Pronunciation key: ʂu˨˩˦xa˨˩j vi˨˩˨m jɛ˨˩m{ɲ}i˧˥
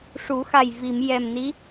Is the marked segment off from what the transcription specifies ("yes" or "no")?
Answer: yes